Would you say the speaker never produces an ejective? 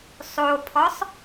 yes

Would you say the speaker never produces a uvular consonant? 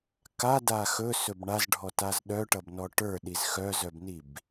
yes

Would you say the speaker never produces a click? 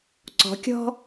no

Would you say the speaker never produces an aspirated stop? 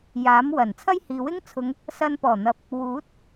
no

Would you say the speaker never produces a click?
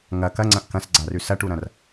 no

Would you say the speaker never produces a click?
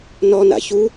yes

